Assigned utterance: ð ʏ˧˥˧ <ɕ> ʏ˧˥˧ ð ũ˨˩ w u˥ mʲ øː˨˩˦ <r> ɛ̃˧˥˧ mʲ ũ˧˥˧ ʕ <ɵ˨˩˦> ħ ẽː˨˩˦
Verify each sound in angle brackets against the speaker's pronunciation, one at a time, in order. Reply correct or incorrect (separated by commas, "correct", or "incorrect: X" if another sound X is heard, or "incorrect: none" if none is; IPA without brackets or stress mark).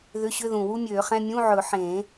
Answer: correct, incorrect: χ, correct